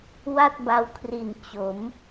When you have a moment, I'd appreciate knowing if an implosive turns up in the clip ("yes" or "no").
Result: no